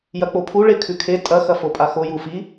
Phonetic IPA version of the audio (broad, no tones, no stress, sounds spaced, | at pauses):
j ɐ k͡p o pʰ u ɭ e kʰ ʉ kʰ e tʼ ɐ x ɐ f o pʼ a x o j u f i